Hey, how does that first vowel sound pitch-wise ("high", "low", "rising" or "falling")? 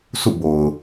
falling